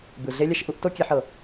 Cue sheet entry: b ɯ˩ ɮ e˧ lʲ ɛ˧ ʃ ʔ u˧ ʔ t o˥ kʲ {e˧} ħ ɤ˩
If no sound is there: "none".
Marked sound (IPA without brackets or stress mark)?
e˧